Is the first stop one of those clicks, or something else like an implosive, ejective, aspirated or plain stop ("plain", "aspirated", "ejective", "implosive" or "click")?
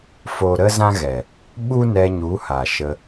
implosive